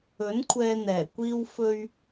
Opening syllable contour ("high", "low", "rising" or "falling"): rising